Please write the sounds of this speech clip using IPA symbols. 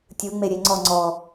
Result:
tʲɯ ŋ͡meɾʲeŋ͡ǀɔ ŋ͡ǀɔ

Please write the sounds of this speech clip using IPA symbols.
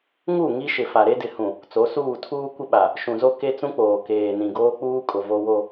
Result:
ŋu˦˨ ŋi˦ʃɪ˨ fa˨ɾe˦dɪ˨hũ˨ | t͡so˨˦suː˦˨ tʰuː˦kʷɪ˦ɓa˨ | ʃũ˨zo˦ ke˦t͡sũ˦k͡poː˨ keː˨ nĩ˨ɡoː˦k͡puː˦kʼʊ˨ vo˦wo˦

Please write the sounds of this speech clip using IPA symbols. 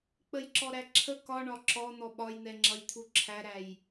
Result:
k͡pəjǁɔɾæǁʰə kɒɳɒ ǁɔn̪ɔ ɓɒjn̪ɛŋ͡ǁʌjt̪ʰu ǁʰæɾæj

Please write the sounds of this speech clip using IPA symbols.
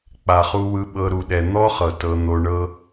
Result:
k͡pa˨χu˧wɯ˧ɓɤ˧ ɾu˨ɗɛ˨ n̪ɔ˦χɤ˨ tɤ˧n̪o˧ ɳɤ˧

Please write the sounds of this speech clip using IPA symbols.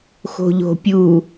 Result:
xo̤ʎo̤ pʲu

